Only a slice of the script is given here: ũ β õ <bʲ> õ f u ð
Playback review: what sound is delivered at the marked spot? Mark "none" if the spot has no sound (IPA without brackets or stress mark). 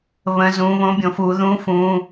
bʲ